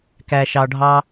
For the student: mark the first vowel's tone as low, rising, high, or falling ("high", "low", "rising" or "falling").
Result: low